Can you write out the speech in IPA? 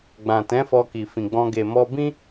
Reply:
ɡ͡b ã˨ t ɛ̃˨˦ f ɔ˧ k i˨ f ĩ˨ ɡ͡b ɔ̃˧ ɡ e˨ m ɔ˧ b ĩ˦

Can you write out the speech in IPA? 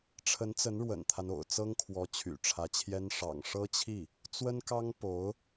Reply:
ʈ͡ʂʰ ə˧˥ n t͡s ə˧˥ n ɻ w ə̰˨˩ n t̪ʰ a˦ n o̰˨˩ ʊ̯ t͡s ɤ˥ ŋ kʰ w ɔ˧˥ t͡ɕʰ y̰˨˩ ʈ͡ʂʰ ä˧˥ t͡ɕʰ j ɛ˥ n ʂ ɑ̰˨˩ ŋ ʂ ɤ˥ t͡ɕʰ i˥˩ | t͡s w ə˥ n k ɑ˥ ŋ p o˧˥ ʊ̯

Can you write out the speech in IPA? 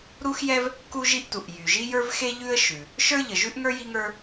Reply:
ɾ u˥ x j ɛ˥ v | k u˥ ʒ i˥ ʔ t u˩ ʔ j y˩ ʒ i˥ j ə˞˥ v x e˥ ʎ ʉ˥ ə̯ ʃ ʉ˩ | ʃ ə˞˥ ʎ ə˩ ʒ ʉ˥ ʔ ŋ ə˞˥ j i˥ ŋ ə˞˥

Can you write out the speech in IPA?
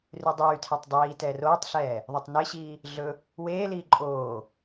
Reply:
r y dˤ yː tʰ ɛ tˤ dˤ iː t ɛː r oː tˤ ɬ ɛː | ðˤ y tˤ n e ɕ iː | ɮ ɵ | w eː l iː ǃʼ oː

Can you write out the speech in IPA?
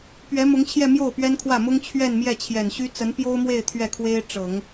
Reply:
p ɥ ɛ˧˥ m ʊ˧˥ ŋ t͡ɕʰ j ɛ˥˧ m j o˥˩ ʊ̯ p ɥ ɛ˥ n kʰ w ä˥˩ m ʊ˥ ŋ t͡ɕʰ ɥ ɛ˥˧ n m j ɛ˥˩ t͡ɕʰ j ɛ˨˩ n ɕ y˥ t͡s ə˧˥ n p j o˥ ʊ̯ m w e˥˧ ɪ̯ t̪ʰ ɥ ɛ˥˩ kʰ w e˥ ɪ̯ ʈ͡ʂ ɤ˨˩˦ ŋ

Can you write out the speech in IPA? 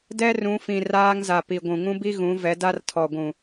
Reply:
d ɛ˦ r ũ˨˦ f ĩ˨ r aː˦ ŋ z a˨ p i˨ ɡʷ ũ˨ ŋ ũ˦ b i˦ ɣ ũ˨˦ v ɛ˨˦ d a˦ r tʰ ɔ˨ ɡʷ ũ˨

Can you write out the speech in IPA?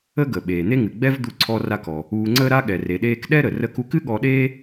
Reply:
ə˥ ɡ ə˩ ɓ eː˩ n̪ e˥ ŋ ɨ˩ ɡ͡b ɛ˥ v d̪ u˧ ǀʰ ɔ˧ r a˧ k ɔ˩ | uː˧ ŋ͡ǀ əː˥ ɾ a˥ ɠ ɛ˩ r e˩ ɗ eː˧ k ɗ ɛ˥ ɾ ə˩ r ə˧ k u˧ k ɨ˥ ɠ ɔ˧ ɗ eː˥

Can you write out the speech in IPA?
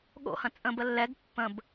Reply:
ɠ o̰ h ɐ̃ t͡sʼ ə̃ b ə lː ɛ ɡ pː ə̃ b

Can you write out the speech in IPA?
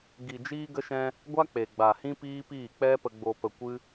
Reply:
ɡ i˨ d͡ʒ iː˧ ɡ ə˧ ʃ ɛ̃˧ | ɡʷ a˦ k͡p e˨ ɡ͡b a˨ h ĩ˦ p iː˦ p iː˦˨ k͡p ɛ˦ p ə˧ ɡ͡b o˧ p ə˧ kʷ ɨ˦

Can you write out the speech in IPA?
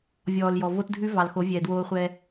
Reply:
vʲ ɔː˨ l j ɔ˨ v o˦ t dʱ ʉ˦ v ɑ˨ l x o˨˦ vʲ ɛː˨ d w oː˧ χʷ ɛ˧

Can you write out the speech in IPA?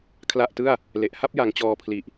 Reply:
kʰ l a˥˩ ʔ t ɯ˥˩ a̯ | l e˨˩ ʔ h a˥˩ p̚ j a˧ ŋ t͡ɕ ɔː˧ pʰ l i˨˩ ʔ

